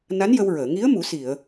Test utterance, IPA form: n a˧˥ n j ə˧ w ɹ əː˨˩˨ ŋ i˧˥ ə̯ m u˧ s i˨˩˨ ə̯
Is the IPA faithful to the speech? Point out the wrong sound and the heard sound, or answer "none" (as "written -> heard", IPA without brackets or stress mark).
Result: u˧ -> u˨˩˦